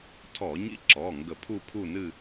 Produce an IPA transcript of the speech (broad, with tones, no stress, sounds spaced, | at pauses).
tʰ ɔ˧˩˧ ɲ ḭ˦ ǁ ɔ˩˧˩ ŋ ɡ ə˧˩˧ pʰ u˦˨ pʰ u˦˨ n ɨ˦˨